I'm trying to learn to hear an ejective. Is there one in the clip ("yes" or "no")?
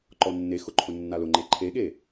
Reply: no